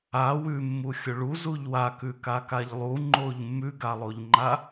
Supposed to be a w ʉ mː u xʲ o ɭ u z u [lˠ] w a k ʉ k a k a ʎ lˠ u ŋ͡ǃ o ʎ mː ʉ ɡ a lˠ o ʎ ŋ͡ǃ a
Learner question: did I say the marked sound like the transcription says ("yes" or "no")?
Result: no